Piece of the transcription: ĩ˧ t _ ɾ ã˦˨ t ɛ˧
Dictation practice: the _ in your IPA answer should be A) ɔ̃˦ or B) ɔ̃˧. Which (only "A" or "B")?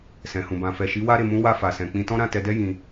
A